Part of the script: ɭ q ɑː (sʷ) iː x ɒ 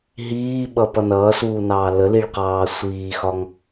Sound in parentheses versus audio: correct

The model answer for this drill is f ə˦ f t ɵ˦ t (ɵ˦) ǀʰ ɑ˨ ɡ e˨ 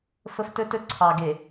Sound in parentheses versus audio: correct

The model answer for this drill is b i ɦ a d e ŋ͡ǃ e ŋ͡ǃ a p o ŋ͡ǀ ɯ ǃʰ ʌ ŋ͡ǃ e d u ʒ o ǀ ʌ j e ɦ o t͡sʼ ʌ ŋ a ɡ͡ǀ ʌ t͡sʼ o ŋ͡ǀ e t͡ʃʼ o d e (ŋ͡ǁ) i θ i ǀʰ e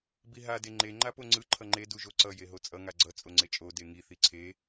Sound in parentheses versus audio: incorrect: ŋ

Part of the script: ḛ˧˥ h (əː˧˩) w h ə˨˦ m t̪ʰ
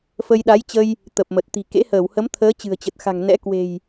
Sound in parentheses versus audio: correct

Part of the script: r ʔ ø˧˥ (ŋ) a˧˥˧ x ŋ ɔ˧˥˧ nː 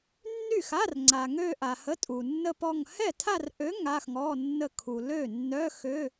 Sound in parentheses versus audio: correct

